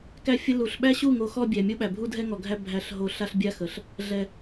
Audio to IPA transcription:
k æ˦ fʲ ə˦ l u˨ ɬ ɓ æ˦ ɕ u˦˨ ŋ o˨ x ɔ˦ bʲ æ˨ mʲ o˦ ɓ æ˨ bʱ u˦ dʱ ɛ˦ ŋ ɔ˨ ɡʱ æ˦ bʱ æ˦˨ ɬ ɦ o˦ ɬ a˦ ɬ bʲ a˦ x ə˨ ɬ | ɮ ɛ˨

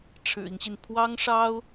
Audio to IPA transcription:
ʈ͡ʂʰ ɻ̩˨˩ i˦ ŋ ɕ i˩ n pʰ w ɑ˥ ŋ ʂ ɑ˥ ʊ̯

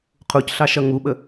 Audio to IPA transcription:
qʰ u c ɬ ɑ ʃ ʌ ŋ u ɓ ə

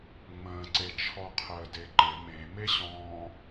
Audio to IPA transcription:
ŋ͡m ə̃ː ǀ e t͡ʃʰ ɔ qʰ əː d e ǃ ɪ m ẽ m e ɕ ɔ̃ː

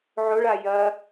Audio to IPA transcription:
ʕ o ɭ a j ɐ

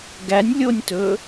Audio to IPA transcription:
ɡ æ nʲ lʲ o nʲ t ɵ

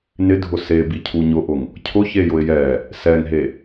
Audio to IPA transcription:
n ɪ dʱ ʊ s e b i cʰ u ɲ ʊ ʔ ʊ ŋ | cʰ ʊ ç e j ʊ ɪ̯ j ɛ | s ɛ ŋ ɦ e

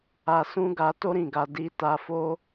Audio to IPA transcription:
a˨ s ũ˧ ɡ a˧ t o˦ ɾ ĩ˦˨ ɡ a˧ d i˧ t a˧ f o˦

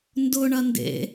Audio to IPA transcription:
n d ʊ ɳ ɐ n d ḛ

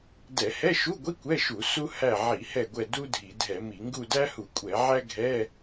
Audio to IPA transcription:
d ɛ˧˩˧ h ɛ˧˥˧ ʃ u˧˥˧ ɡʷ i˧˥˧ kʷ ɛ˧˥˧ ʃ u˧˩˧ s u˥ h æ˦˨ ʕ i˧˩˧ h ɛ˦˨ ɡʷ ɛ˦˨ d u˥ dʱ i˧˩˧ dʱ ɛ˧˩˧ m i˧˩˧ ŋ ɡ u˦˨ d æ˥ h u˧˩˧ kʷʼ ɛ˧˩˧ ʕ æ˥ ɡʱ ɛ˧˥˧

